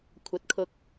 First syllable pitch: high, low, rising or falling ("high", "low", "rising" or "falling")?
rising